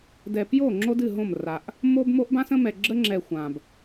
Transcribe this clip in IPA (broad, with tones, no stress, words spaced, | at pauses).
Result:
dɛ˨pjo˦˨ ŋ͡ǁo˦dɨ˦˨ɦõ˦˨m ra˨ʔ | mo˦b mo˦ʔbã˦sə̃˦mɛ˨ ɡ͡ǁə˦ŋ͡ǁɛ˨ xʷã˨b